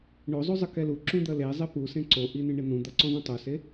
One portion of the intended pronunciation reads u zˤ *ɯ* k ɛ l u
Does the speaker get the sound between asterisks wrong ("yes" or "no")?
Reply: no